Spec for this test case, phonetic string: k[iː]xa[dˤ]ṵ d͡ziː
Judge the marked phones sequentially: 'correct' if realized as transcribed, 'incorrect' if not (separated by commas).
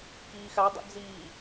correct, correct